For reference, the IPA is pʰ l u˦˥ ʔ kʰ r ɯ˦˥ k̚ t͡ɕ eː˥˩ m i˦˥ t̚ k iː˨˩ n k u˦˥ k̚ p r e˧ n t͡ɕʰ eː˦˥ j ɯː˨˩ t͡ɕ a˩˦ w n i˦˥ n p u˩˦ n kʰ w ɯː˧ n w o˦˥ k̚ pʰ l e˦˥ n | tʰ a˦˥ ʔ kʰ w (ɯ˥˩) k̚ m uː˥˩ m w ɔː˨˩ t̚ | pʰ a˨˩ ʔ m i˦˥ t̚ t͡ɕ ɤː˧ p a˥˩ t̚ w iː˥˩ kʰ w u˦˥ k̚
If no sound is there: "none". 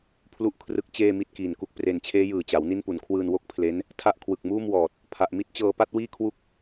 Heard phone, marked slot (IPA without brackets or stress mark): ɯ˨˩